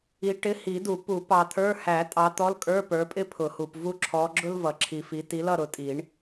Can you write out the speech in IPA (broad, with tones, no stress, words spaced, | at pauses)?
i˨˦ʈɪ˧˥˧ hi˨˩˦du˨˩˦ pu˨˩˦ pɑ˨t̪ʰə˞˧˥˧ hæ˨˩˦ tʼɑ˨˦t̪ɔ˧˥˧lkʼə˞˧˥˧ pə˞˨˦pʼɪ˥ pʰʊ˨˩˦hu˨p vu˦˨ǁʰɔ˨˦ɡ͡ǁʊ˥l vʌ˨˩˦ǁʰi˨fi˨˦ ti˨˦lʌ˦˨ ɾʊ˨˦tʼi˨˩˦ɳ